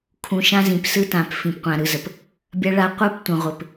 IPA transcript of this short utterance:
kʰ ũ˨ ʃ ã˦ z ĩ˨ p s ɯ˦ t ã˨ p f ĩ˨ p qʷ ã˨ ɾ ɯ˨ z ə˨ p | bʲ ɐ˦ ɭ a˦ qʷ ɯ˦ p tʷ ə̃˨ ʁʷ ɘ˨ p

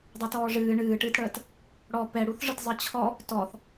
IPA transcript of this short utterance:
dˤ ɛ t ɔː ʐ ɨː ɳ ɨː ʈ ɨː t ɽ əː t | ɽ ɔ p ɛ ɽ u θ ʐ ɯ t zˤ ɨ t͡ɕʰ ɔ | t ɔ θ

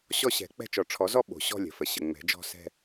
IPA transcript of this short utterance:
ɕ ɔ˥˧ ɕ ɛ̤˨˩˦ k͡p ɛ̤˥˧ t͡ʃ ɔ˨˩ ʈ͡ʂʰ ɔ˨˩˦ z ɔ˥˧ ɓ o̤˨˩ ɕ ɔ̤˥˧ lʲ ə̤˨˩ f ə˨˩ ɕ ə˨˩ ŋ͡m ɛ̤˨˩˦ d͡ʒ ɔ̤˥˧ s ɛ̤˥˧

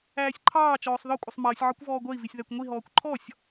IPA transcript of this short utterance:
æː sʲ ǃʰ ɑː t͡ʃ ɔː sˤ ð ɒ kʷʼ ʌ sˤ m ʌː sʲ ʕ ɒ kʷ v ɔː ɡʷ ɜ i̯ v i sʲ ð æ kʷ ŋʷ i ɦ ɔː kʷ ǃʰ ɔ sʲ

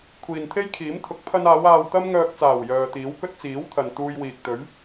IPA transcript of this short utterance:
kʷʰ iː˨ n t̪ʰ e˥ j kʰ iː˨˥ m t̪ʰ ʊ˨˥ k̚ pʰ ɐ˧ n aː˨˧ w aː˧ w t̪ ɐ˥ m ŋ œː˧ k̚ t͡s aː˨˩ w j œː˨ t̪ iː˨˥ w k ɵ˥ t̚ t͡s iː˨˥ w t̪ʰ ɐ˨ n t̪ uː˧ j w iː˨ k̚ t̪ ɵ˨˥ ɥ

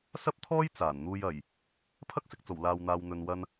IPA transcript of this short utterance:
s ɐ˥ p̚ t̪ʰ ɔː˥ j t͡s aː˨˩ n n̪ uː˧ j ɐ˨˩ j | pʰ ɐ˥ k̚ s ɪ˨ k̚ t͡s o˨˩ w l aː˨ w n̪ aː˨ w n̪ ɵ˨ n w ɐ˧ n

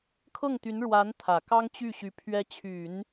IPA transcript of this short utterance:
kʰ ɤ˥˩ ŋ t̪ y˧˥ n ɻ w a˧˥ n t̪ʰ ä˨˩ k ɑ˥ ŋ t͡ɕ y˥˩ ɕ y˧˥ pʰ ɥ ɛ˧˥ t͡ɕʰ y˨˩˦ n

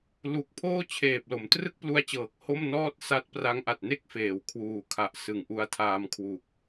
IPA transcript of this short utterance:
l u˨˩ k̚ pʰ oː˥˩ t͡ɕʰ eː˨˩ p̚ l o˩˦ m t r ɯ˥˩ k̚ p l u˧ a̯ t͡ɕ ɤː˨˩ k̚ h o˥˩ m n ɔː˥˩ t̚ s a˦˥ t̚ p r a˦˥ ŋ ʔ a˨˩ t̚ n e˥˩ k̚ f eː˨˩ w kʰ w uː˨˩ kʰ a˨˩ ʔ s ɯ˨˩ ŋ ʔ u˧ a̯ tʰ aː˧ m kʰ w u˨˩ k̚

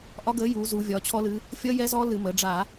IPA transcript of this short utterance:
ʔ ɒ˦˥ ɡ əː˨˥ j uː˩˧ z u˩˧ vʲ ɒ˩˧ t͡ɕʰ ɔ˦˥ l ɨ˨˥ | fʲ ʌ˦˥ j ɛ˦˥ z ɔ˦˥ l ɨ˧˩˧ m əː˩˧ ɖ͡ʐ a˧˩˧

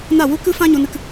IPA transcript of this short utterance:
n a˦˨ w u˦ k ɨ˦ f ã˦ ɲ o˦ n ɨ˦ k

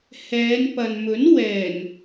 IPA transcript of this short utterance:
h ɛː˨˧ n p ɐ˨ n m ɵ˨˥ n w ɛː˨˩ n

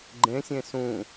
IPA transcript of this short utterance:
ɡ͡ǃ ẽ sʲ ẽ s ũ

